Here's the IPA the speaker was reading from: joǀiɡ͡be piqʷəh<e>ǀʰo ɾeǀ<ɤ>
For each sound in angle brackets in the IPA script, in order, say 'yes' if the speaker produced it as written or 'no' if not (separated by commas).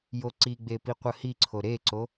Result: no, no